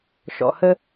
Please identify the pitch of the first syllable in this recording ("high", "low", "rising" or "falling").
low